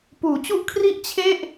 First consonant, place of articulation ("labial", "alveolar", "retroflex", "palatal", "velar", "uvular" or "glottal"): labial